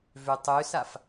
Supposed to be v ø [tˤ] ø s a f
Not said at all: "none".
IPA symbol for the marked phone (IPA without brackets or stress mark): tˤ